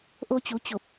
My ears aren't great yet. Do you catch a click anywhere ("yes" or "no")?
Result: no